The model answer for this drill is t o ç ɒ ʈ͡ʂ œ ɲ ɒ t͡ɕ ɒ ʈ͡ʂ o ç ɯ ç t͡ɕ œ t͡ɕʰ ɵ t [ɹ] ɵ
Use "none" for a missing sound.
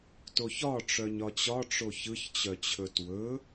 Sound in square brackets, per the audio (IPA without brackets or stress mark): w